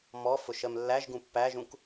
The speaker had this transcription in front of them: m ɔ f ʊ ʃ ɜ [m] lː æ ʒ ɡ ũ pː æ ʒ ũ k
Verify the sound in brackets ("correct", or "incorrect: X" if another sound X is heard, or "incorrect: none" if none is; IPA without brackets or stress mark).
correct